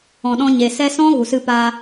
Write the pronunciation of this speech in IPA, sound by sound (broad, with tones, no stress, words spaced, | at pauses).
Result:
ɔ̃˨ɗɔ̃˧ ɲe˨ sɛ˧sɔ̃˦ ɣu˨sɨ˧paː˧